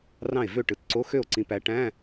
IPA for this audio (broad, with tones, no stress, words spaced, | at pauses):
rɑ̃˥˩e̯vø˥˩ ʈɯ˨tǀo˧˥˧ xø˥˩o̯ǀĩ˨˥pæ˨˥ ʈæ̃˧˥˧